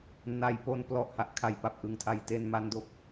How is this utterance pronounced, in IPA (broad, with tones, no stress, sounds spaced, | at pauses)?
n a˧ j p o˦˥ n p l ɔ˨˩ ʔ h a˨˩ ʔ kʰ a˨˩ j p a˨˩ p̚ ʔ ɯ˨˩ ŋ tʰ a˩˦ j t e˧ n m a˦˥ n d o˦˥ k̚